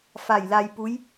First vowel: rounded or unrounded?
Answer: unrounded